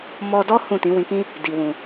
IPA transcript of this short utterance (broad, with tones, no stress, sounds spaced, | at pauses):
m ɔ˧ d ɔ˦ h ũ˦˨ t ĩ˨˦ w ĩ˧ k ĩ˦ | d i˨ w ũ˨